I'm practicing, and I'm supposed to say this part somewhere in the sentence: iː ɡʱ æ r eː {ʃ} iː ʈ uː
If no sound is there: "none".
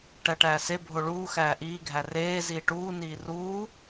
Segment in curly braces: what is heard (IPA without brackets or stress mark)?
z